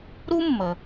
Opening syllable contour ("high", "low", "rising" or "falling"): high